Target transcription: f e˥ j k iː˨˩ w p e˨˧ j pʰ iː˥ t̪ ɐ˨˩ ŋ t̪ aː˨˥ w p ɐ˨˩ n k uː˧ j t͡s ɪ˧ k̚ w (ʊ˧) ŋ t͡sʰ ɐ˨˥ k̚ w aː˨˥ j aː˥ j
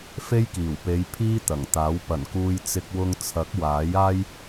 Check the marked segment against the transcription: correct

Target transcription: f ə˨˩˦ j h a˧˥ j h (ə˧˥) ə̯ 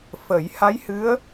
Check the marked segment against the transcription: incorrect: ɨ˧˥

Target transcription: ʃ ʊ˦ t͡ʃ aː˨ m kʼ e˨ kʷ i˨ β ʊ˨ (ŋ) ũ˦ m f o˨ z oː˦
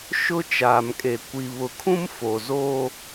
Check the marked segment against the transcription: incorrect: kʰ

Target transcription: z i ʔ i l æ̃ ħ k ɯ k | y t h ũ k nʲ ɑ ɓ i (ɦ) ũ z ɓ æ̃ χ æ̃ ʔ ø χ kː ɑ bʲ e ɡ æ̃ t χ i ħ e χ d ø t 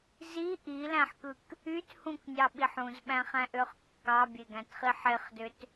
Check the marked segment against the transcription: incorrect: ħ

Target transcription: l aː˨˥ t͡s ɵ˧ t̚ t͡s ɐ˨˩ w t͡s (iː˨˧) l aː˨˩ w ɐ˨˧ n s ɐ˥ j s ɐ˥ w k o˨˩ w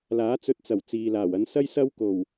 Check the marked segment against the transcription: incorrect: iː˨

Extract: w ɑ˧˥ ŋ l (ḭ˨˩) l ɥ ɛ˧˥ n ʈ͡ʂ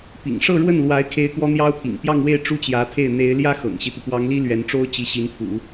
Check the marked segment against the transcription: incorrect: i˥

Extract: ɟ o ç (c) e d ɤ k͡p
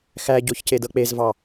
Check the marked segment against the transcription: correct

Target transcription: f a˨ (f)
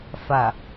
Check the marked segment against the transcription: incorrect: none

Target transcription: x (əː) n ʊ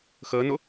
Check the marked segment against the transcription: correct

